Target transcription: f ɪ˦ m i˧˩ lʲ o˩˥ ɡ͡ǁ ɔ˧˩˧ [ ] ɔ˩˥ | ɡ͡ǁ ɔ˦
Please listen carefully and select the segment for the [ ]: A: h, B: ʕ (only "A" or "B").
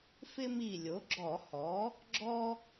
A